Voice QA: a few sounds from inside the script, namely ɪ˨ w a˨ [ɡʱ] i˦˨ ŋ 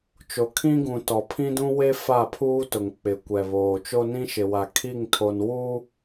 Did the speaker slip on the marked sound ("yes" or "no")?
yes